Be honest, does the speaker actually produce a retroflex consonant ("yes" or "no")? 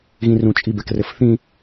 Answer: no